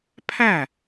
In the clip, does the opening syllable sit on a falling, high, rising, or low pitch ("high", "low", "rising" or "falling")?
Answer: falling